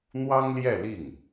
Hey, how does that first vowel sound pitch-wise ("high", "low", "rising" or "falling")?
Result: high